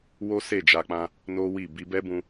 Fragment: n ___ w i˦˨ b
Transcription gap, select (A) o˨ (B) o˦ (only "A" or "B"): B